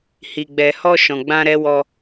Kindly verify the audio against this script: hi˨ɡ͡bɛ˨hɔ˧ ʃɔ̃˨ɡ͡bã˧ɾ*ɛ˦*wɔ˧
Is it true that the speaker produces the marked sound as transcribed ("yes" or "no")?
no